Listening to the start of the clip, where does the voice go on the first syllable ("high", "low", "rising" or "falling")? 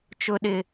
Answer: high